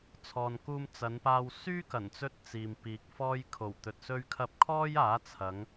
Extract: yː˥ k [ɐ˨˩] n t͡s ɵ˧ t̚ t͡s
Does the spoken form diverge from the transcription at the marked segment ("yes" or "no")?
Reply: no